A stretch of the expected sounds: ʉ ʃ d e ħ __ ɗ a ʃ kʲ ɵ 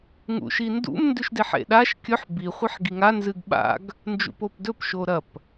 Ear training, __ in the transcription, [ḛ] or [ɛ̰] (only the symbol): ḛ